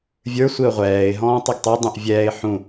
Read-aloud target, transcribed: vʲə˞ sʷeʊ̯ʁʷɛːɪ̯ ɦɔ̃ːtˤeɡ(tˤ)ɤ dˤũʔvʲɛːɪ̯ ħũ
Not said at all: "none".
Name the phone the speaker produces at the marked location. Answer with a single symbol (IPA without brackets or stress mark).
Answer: tˤ